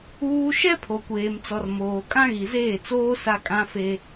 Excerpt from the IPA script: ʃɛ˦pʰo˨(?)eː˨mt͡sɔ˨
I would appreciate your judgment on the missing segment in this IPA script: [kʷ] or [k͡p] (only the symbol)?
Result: kʷ